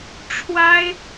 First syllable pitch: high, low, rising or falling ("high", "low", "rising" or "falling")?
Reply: high